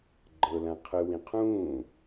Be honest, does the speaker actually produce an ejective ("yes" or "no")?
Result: no